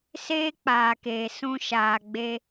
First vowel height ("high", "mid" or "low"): mid